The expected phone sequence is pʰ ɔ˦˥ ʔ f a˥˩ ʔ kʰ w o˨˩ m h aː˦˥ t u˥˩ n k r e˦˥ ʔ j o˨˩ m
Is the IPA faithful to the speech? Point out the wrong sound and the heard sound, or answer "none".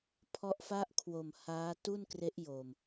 none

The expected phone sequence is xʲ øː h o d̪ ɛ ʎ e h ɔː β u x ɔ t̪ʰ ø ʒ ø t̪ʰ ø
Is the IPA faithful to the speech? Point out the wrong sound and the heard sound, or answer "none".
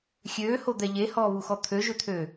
none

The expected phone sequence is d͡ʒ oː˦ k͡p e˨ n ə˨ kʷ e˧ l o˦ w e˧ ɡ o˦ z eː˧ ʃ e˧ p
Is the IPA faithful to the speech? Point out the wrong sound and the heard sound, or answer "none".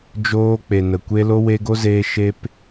none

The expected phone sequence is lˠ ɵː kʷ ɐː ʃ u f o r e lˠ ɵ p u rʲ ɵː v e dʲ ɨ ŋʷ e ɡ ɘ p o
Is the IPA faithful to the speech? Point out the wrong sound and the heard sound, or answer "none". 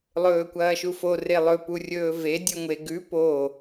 ɘ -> ʉ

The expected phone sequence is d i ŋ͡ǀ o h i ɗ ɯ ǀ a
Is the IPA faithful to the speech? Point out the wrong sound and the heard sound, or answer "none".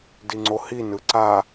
ɗ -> n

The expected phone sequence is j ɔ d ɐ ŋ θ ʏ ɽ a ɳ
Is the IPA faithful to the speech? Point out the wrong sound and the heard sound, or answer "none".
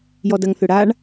none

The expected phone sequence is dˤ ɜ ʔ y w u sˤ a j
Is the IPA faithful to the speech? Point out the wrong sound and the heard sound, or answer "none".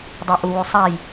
y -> u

